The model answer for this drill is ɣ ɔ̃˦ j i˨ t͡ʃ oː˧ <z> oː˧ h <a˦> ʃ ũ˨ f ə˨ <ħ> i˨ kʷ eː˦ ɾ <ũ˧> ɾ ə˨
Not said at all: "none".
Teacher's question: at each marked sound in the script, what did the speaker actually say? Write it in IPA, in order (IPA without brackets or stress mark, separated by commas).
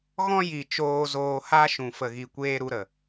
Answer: z, a˦, ɣ, u˧